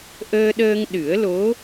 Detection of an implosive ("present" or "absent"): present